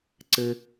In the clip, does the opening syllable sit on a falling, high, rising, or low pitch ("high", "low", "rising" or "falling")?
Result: high